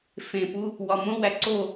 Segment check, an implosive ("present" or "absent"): absent